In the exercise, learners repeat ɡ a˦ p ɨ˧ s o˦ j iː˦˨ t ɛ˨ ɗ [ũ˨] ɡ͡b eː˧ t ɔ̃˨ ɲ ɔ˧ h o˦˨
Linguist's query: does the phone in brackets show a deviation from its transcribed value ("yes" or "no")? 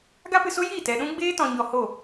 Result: yes